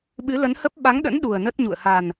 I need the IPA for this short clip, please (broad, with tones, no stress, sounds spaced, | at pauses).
ɓ ɨ˨˦ l ə˨˦ n h ə˦˥ p̚ ɓ a˨˦ ŋ ɗ ə̰˧˥ n ɗ u˨˩ ə̯ n ə˦˥ t̚ ɲ ṵ˧˨ ə̯ h a˨˩ n